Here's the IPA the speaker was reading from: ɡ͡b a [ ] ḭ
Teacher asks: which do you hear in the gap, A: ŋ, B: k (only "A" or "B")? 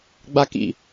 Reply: B